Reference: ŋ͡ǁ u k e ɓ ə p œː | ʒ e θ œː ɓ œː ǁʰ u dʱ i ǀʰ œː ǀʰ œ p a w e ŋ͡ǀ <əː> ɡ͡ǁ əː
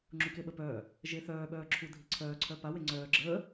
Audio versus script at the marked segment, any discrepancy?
yes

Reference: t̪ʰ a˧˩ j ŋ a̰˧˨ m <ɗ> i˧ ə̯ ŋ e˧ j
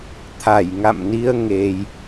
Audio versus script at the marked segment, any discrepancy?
yes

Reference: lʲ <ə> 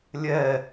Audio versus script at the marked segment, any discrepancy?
yes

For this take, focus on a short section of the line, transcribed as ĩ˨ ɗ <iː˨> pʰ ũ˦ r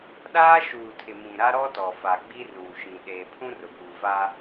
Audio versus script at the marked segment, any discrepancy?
yes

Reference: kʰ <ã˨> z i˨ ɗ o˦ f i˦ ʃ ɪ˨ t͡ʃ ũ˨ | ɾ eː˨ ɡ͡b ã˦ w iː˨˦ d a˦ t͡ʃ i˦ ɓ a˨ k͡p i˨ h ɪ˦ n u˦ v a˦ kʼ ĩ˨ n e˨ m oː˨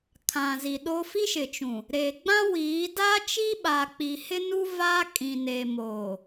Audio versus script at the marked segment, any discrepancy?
no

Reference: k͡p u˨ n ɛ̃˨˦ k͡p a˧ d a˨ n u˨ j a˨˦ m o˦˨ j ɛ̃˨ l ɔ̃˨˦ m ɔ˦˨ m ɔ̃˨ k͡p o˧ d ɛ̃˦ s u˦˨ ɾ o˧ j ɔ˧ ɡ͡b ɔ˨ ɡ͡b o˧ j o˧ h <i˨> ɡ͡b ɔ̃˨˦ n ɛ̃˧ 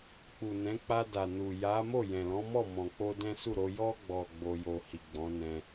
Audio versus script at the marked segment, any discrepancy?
no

